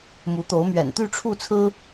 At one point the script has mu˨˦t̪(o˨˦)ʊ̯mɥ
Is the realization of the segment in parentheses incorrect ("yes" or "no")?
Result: no